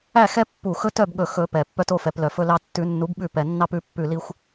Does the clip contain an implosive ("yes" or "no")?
yes